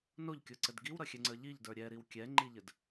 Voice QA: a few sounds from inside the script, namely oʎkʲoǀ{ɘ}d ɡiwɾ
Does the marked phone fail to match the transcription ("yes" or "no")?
no